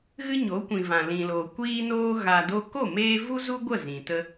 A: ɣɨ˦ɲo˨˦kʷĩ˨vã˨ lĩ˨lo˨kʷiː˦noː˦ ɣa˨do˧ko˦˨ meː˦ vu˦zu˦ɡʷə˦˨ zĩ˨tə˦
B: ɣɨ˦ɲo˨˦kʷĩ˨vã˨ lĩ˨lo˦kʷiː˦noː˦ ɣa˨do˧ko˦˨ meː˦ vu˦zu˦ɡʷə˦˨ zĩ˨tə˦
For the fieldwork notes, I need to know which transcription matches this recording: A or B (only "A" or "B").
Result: A